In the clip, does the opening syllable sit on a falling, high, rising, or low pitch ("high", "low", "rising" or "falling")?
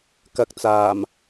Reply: low